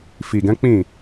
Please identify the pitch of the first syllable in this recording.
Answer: low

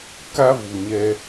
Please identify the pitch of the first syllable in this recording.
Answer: high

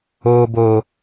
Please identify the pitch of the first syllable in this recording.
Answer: low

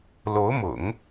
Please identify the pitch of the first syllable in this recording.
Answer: rising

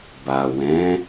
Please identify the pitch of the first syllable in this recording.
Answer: low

